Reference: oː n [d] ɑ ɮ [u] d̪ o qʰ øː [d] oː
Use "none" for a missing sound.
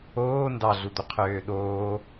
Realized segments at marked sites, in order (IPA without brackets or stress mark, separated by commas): d, u, ɗ